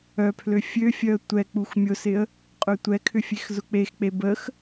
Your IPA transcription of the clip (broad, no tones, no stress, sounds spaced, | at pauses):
œ pʰ l ø fʲ ø fʲ œ ə̯ tʷ ɛ k͡p u x mʲ ʊ s ɪ ə̯ | qʼ ø tʷ ɛ kʰ ʏ fʲ e x z ʊ k͡p e x k͡p e b ə x